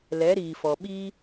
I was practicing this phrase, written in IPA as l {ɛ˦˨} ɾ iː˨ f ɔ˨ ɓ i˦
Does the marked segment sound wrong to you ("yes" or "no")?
yes